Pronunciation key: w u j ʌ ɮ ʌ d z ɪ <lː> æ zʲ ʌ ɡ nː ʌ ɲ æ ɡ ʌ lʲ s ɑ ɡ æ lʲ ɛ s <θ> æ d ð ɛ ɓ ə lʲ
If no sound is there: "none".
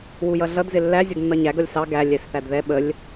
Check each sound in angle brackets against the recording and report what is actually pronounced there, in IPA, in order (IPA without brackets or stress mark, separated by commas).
lː, θ